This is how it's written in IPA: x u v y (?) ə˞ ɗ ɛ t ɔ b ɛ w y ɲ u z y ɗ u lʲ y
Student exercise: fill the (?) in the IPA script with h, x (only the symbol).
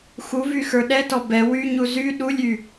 x